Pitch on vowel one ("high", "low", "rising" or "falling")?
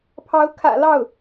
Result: rising